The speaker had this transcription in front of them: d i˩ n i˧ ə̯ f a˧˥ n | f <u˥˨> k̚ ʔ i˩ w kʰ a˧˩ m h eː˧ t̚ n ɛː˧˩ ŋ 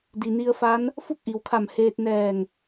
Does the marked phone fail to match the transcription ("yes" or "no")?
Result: no